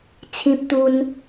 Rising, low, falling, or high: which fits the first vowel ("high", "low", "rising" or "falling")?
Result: high